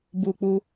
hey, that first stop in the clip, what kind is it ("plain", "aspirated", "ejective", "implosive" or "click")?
plain